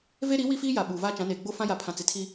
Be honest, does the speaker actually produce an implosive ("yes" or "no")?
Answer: yes